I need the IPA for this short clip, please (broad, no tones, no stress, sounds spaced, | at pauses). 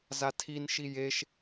z a tʰ i n ʃ i j e ʃ